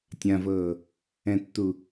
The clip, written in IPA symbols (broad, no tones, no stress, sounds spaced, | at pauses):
tʲ ã v ɤ | ɛ̃ tː u